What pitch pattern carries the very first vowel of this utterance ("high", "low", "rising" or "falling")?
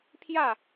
falling